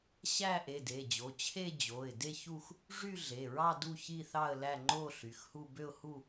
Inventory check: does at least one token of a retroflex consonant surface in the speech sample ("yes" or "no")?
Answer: yes